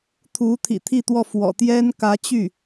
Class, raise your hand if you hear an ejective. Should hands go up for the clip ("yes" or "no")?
no